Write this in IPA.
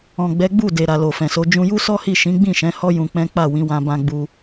ɔ̃˨ ɡ͡b ɛ˨˦ ɡ͡b u˦˨ d e˨ ɾ a˨ l o˨ f ɛ̃˨ s o˨˦ d͡ʒ ũ˧ j u˦ s ɔ˦ h i˦˨ ʃ ĩ˨˦ ɡ͡b ĩ˦˨ ʃ ɛ̃˨˦ h ɔ˦ j ũ˧ k͡p ɛ̃˦ k͡p a˦˨ w ĩ˨˦ w ã˧ b ã˧ ɡ͡b u˧

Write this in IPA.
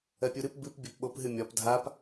ɜ pʲ u ɾ ɨ p b ɨ p bʲ ɒ p ɓ o p ɦ ɨ mʲ ɒ p dʱ a p

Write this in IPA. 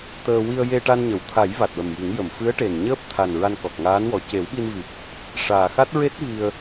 t̪ əː˧ w i˧ ə̯ j e˧ ʈ a˧ n ɲ ə˨˩˨ w t̪ʰ a˨˩˦ j v a˨˩ t̚ w ə˨˩ m j i˨˩˦ ŋ j ə˨˩˨ m f ɨ˧˥ ə̯ ʈ e˨˩ n ɲ əː˦˥ p̚ t̪ʰ a˨˩ n ɹ a˧ n k ɔ˨˩ k̚ ŋ aː˧˥ n w ɔ˨˩ c e˨˩˦ w ɓ i˧ n v i˨˩ p̚ | ʂ aː˨˩ x a˦˥ t̚ ɹ e˦˥ t̚ v i˧ ə̯

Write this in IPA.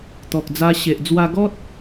t̪ ɔ˨ k̚ d͡z a˧ ɕ e˨ ʔ d͡z w a˧ ɡ ɔ˦ t̚

